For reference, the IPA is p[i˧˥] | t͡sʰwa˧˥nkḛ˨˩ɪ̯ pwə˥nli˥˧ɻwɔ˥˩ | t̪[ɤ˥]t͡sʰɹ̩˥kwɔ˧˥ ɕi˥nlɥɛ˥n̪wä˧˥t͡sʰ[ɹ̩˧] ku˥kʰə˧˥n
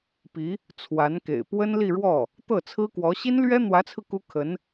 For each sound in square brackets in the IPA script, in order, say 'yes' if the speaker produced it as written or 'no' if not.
yes, no, yes

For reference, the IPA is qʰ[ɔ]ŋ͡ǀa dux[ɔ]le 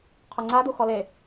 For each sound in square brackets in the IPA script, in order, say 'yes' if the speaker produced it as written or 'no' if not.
no, yes

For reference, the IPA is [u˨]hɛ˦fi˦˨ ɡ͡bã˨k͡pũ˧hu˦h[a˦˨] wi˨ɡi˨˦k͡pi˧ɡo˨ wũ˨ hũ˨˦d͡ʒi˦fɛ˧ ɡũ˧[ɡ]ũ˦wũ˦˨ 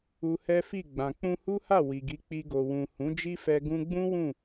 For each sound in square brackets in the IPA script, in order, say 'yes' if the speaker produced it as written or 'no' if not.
no, yes, no

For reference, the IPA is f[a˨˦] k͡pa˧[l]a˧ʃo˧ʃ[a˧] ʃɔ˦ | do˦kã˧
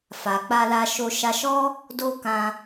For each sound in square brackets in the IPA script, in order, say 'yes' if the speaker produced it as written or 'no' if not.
no, yes, yes

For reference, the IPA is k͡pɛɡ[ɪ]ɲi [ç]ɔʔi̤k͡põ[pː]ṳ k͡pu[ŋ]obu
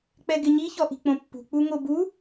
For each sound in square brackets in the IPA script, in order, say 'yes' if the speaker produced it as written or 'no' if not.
yes, yes, yes, yes

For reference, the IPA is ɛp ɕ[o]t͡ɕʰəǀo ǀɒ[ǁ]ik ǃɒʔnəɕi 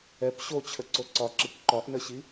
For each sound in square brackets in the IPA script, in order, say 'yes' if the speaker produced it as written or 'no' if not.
yes, yes

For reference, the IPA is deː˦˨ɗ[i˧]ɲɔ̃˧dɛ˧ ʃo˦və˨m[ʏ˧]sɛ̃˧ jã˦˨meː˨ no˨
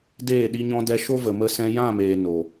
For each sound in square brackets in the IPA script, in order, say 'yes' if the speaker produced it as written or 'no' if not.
yes, no

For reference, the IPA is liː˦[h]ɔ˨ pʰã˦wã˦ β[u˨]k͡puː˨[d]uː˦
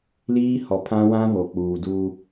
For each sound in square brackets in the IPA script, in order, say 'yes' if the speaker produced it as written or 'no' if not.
yes, no, yes

